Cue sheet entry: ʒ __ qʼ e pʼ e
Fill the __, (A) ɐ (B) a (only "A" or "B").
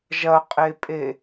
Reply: A